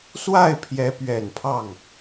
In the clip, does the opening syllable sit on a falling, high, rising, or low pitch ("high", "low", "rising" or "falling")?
falling